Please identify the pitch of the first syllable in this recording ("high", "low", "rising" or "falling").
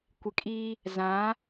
low